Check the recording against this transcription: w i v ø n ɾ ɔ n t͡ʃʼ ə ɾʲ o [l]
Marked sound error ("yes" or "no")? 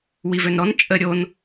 yes